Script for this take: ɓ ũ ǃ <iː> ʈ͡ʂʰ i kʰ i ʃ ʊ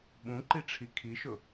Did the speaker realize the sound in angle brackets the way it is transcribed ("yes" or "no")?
no